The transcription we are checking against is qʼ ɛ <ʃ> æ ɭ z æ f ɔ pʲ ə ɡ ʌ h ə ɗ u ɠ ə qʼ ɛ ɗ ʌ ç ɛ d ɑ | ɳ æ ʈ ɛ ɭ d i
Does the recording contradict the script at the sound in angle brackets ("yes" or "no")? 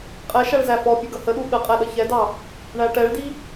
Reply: no